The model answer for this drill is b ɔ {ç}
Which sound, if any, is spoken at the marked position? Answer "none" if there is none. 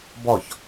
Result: ç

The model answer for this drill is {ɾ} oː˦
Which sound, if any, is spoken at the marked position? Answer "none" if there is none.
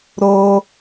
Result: ɾ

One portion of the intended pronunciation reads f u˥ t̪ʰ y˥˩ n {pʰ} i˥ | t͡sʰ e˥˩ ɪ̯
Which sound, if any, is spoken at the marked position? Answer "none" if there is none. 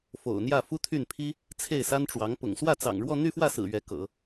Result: pʰ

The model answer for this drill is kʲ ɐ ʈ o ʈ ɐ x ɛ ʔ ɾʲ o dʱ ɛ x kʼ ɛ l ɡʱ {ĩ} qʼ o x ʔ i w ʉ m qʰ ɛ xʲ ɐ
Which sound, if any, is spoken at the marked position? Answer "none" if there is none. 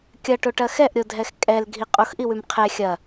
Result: i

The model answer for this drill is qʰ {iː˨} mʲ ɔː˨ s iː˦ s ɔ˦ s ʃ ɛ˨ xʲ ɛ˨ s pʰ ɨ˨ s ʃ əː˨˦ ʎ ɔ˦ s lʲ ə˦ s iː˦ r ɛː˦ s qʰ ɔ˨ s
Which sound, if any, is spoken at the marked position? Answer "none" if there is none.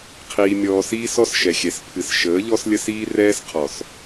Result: iː˨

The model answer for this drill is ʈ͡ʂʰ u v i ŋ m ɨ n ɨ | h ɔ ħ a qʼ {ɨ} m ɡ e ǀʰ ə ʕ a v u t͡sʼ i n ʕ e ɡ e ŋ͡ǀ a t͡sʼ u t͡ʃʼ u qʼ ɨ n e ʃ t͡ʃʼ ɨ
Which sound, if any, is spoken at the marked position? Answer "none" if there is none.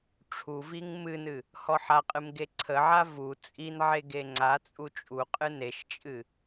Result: ɨ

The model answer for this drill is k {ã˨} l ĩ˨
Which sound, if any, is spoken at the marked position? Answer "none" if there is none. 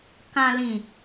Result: ã˨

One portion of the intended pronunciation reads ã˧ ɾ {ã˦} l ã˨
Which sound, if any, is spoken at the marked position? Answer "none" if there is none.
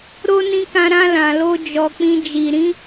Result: ã˧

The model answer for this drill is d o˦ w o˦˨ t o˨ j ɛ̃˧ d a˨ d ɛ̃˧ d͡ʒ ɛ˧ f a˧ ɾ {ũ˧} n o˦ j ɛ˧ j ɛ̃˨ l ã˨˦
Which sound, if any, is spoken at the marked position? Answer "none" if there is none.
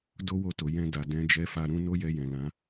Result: ũ˧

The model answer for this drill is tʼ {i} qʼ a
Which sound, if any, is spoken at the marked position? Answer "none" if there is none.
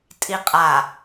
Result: i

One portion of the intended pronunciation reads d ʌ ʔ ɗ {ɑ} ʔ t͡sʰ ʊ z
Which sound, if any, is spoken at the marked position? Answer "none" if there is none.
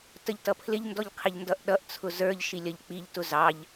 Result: ʌ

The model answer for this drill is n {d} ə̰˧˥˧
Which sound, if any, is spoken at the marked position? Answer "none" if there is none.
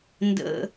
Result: d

